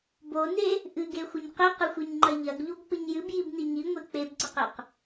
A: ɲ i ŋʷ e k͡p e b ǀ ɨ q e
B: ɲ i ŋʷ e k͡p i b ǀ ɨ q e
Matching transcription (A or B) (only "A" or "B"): A